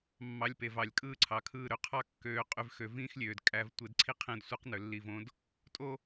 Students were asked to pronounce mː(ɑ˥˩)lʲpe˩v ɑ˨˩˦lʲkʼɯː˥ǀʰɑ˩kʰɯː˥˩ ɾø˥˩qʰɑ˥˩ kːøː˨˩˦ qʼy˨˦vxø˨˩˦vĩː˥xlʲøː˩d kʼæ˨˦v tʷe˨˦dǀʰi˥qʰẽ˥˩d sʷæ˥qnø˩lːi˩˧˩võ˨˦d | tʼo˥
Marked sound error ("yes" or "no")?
yes